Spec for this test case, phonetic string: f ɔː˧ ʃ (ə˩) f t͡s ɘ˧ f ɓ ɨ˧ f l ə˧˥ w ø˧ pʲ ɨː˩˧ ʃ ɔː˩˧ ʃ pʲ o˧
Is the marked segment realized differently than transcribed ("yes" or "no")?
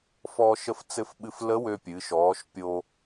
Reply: yes